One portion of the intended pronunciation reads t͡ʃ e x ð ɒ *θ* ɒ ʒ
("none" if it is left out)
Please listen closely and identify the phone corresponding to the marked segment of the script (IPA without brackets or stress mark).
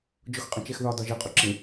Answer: d